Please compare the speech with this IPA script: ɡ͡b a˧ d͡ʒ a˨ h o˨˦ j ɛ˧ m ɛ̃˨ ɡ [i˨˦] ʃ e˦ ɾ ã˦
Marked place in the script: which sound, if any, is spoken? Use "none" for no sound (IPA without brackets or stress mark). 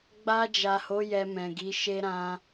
i˨˦